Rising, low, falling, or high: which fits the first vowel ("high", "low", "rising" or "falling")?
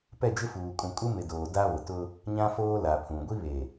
falling